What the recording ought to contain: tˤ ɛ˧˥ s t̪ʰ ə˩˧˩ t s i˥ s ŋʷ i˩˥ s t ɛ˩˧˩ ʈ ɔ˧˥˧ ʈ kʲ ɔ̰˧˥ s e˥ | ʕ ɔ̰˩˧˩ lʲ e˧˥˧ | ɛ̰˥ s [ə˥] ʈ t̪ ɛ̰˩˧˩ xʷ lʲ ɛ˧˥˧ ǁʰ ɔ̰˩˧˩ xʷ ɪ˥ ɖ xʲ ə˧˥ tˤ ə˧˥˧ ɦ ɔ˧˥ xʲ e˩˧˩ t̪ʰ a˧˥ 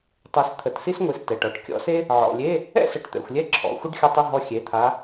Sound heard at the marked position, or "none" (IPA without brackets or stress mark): ə˩˧˩